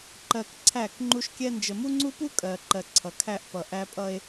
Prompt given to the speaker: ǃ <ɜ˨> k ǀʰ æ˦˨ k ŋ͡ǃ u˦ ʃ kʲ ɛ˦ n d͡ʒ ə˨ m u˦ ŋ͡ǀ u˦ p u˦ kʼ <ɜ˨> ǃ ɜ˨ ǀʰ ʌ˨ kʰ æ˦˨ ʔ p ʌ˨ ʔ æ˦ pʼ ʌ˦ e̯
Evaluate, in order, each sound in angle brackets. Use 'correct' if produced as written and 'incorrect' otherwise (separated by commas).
correct, correct